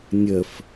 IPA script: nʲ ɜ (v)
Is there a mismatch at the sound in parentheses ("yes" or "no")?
yes